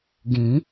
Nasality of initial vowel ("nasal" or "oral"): nasal